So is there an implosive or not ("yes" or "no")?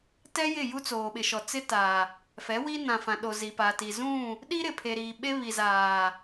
yes